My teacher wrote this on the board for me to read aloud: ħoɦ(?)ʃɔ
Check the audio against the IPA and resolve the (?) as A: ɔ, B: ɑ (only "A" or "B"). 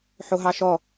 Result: B